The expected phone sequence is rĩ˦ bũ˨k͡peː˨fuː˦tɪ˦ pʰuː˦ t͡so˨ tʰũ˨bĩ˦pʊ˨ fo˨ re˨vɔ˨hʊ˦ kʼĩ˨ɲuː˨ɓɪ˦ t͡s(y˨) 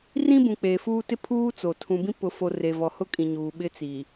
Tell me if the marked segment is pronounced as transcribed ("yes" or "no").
no